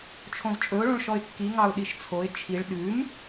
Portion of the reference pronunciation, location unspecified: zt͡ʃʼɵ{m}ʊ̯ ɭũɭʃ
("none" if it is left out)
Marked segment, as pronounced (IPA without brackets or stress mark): none